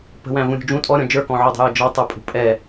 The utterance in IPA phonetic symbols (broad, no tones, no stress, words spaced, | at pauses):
pə̤wæ̃ vũɾʲṳd͡ʒũ tʼɔɾʲɔ̃ d͡ʒə˞kɔ̃ʕɔdˤə̤ jəd͡ʒɔtˤə˞ pʼṳpʼɛ